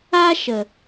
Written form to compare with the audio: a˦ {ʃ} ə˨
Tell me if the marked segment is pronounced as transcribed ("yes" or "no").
yes